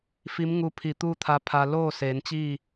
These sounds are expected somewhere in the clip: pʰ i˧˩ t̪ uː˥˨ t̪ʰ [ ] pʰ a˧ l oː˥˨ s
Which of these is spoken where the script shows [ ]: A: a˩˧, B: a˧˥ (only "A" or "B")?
B